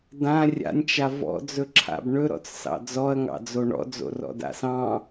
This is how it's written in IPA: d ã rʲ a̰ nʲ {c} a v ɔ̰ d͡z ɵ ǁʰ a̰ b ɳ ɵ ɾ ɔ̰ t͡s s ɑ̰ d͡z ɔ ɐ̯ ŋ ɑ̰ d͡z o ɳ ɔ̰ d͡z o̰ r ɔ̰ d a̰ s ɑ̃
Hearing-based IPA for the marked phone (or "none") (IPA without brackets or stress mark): t͡ʃ